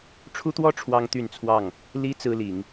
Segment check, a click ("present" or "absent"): absent